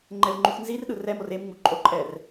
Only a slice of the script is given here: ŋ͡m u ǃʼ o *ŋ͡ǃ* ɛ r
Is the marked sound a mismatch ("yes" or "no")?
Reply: yes